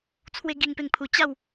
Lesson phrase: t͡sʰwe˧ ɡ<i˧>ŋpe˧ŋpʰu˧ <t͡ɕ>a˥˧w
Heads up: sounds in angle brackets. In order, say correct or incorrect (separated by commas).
correct, correct